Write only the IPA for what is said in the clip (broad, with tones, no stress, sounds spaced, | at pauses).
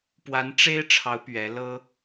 p w a˧˥ n ʈ͡ʂ e˥ ɪ̯ ʈ͡ʂʰ ɑ˧˥ ʊ̯ p ɥ ɛ˧˥ l ɤ˥